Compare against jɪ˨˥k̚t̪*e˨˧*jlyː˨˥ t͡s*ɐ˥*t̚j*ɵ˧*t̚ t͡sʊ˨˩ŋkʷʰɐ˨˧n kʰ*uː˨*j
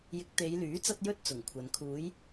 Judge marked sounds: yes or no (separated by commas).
yes, no, yes, no